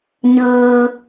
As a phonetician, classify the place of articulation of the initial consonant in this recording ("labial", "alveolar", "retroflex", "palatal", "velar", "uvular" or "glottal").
palatal